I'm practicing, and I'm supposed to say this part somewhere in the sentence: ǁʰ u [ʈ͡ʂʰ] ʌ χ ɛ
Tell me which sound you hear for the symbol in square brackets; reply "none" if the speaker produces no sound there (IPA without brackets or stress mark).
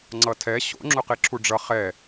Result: ɖ͡ʐ